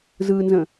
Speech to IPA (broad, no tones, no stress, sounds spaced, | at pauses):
z ɯ n z ə̃